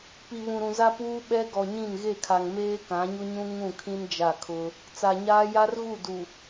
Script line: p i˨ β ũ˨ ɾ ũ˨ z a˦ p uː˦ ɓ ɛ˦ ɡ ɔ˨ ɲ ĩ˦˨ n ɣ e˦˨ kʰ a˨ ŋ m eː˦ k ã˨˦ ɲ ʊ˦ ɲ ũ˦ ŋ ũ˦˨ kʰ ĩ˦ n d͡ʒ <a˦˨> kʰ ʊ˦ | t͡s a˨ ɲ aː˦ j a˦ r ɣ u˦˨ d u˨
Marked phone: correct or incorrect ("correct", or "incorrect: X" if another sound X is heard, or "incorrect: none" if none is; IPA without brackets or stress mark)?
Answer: correct